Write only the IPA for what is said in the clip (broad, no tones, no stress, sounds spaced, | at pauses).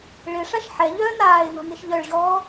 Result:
ɭ ɪ ʂ a ʃ ħ ɛ ʎ œː n̪ aː ɪ̯ n̪ ɔ̤ n̪ i ʃ ʎ œ ɭ ʑ ɔː